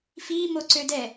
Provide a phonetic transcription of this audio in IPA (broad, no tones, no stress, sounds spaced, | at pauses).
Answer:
f i m o ǀ ø d ɛ